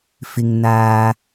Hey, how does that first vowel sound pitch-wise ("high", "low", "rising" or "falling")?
high